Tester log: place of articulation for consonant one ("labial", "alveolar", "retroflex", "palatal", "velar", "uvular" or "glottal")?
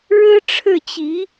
retroflex